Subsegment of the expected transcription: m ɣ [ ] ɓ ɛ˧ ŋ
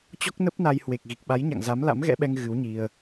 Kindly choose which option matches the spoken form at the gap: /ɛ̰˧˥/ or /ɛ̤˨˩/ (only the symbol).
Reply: ɛ̰˧˥